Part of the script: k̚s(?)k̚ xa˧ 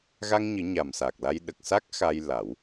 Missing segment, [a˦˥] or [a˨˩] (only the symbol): a˦˥